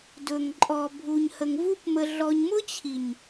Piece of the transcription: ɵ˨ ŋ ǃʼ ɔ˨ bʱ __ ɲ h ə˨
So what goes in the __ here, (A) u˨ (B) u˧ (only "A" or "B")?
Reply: A